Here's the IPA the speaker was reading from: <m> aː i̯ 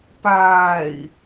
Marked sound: incorrect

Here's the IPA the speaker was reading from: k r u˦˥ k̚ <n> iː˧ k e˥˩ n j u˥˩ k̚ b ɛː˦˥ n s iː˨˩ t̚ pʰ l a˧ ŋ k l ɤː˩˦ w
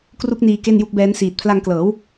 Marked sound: correct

